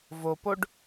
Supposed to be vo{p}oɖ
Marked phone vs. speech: correct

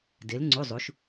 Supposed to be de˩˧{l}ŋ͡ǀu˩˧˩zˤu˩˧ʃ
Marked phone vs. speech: correct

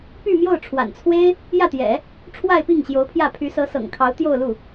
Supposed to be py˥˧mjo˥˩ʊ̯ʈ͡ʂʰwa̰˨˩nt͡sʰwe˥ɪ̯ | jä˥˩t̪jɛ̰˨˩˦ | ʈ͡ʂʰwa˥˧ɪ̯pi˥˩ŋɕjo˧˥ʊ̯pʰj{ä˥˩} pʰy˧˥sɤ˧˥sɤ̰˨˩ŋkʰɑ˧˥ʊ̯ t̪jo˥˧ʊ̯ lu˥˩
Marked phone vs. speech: correct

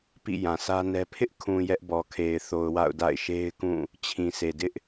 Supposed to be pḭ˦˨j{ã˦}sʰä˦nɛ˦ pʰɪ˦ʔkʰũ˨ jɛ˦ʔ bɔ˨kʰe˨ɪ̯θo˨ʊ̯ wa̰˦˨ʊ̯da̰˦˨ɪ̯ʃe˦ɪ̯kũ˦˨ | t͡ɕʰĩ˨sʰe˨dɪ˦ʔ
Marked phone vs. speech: incorrect: ã˨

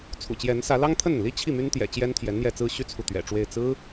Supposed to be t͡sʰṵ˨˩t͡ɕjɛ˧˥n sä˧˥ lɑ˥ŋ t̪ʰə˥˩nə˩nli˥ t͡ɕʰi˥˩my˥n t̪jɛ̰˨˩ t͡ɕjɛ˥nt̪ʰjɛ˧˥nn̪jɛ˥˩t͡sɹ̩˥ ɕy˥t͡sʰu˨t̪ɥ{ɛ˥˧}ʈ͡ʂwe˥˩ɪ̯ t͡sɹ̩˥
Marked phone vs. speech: incorrect: ɛ̰˨˩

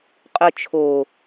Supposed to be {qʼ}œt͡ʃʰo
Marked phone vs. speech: correct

